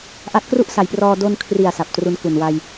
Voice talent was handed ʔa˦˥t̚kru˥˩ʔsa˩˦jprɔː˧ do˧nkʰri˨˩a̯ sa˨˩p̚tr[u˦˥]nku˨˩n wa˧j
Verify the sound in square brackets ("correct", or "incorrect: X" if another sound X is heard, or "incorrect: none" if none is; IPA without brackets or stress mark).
correct